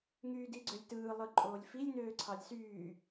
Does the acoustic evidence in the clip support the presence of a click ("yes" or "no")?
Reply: yes